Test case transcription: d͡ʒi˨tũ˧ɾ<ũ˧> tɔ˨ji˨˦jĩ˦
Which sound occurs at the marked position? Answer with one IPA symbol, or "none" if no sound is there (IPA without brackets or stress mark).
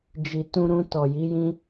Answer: ũ˧